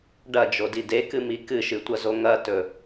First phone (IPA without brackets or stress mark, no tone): ɖ